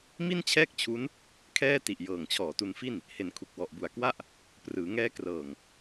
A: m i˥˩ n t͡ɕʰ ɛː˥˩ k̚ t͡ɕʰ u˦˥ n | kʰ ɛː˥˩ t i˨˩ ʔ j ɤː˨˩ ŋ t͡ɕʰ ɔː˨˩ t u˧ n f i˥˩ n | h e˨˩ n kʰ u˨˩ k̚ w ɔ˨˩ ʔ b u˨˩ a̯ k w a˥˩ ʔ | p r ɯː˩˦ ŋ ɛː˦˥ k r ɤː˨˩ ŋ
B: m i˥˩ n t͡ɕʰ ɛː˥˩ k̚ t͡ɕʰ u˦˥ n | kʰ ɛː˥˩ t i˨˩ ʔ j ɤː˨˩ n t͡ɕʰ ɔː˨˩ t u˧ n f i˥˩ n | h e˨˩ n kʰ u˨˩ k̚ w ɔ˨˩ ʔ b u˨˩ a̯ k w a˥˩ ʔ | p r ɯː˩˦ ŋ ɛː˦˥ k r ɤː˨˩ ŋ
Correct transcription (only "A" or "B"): A